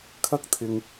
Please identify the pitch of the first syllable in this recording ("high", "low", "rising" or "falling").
high